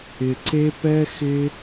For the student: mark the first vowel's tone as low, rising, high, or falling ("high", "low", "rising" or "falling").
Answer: low